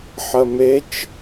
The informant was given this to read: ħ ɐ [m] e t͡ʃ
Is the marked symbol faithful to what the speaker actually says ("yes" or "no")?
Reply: yes